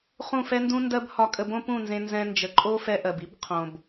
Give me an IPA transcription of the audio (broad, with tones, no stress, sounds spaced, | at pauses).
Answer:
χ ũ˦˨ f ɛ˦ n d ũ˦ n d ɜ˦ b h ɒ˧ kʼ ə˧ b õ˦ p ũ˦˨ n z ẽ˧ n z ɛ̃˧ n d͡ʒ ə˨˦ ǃʼ o˦ f ɛ˧ ʔ ɜ˨ b i˦ b qʰ õ˨ b